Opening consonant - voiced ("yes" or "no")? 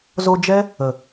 yes